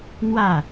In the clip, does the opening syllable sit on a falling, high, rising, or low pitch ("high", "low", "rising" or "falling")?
falling